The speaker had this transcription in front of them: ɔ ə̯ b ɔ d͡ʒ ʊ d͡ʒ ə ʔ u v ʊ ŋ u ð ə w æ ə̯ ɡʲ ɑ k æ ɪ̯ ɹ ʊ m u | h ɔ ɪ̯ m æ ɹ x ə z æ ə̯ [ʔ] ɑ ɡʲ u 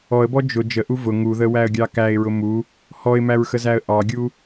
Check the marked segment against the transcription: correct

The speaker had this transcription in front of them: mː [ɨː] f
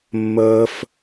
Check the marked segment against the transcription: incorrect: əː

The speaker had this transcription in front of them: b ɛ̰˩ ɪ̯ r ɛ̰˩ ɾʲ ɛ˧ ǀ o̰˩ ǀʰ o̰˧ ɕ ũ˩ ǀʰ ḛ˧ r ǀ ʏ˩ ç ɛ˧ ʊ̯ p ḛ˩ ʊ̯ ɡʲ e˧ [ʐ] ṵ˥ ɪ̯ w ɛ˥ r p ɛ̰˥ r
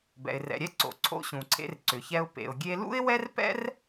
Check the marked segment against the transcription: incorrect: l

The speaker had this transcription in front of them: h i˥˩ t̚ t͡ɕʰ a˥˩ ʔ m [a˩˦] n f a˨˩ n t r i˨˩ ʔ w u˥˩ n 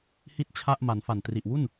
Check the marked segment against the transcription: correct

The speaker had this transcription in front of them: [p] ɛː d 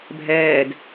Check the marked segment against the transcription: incorrect: bʱ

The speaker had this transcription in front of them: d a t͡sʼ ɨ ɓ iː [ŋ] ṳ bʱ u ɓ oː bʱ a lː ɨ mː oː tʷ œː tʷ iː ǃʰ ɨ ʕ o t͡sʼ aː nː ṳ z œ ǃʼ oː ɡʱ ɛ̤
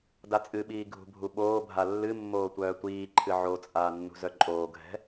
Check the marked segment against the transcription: incorrect: ɡʱ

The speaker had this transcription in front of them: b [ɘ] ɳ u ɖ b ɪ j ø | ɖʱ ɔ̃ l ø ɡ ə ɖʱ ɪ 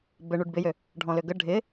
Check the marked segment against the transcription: correct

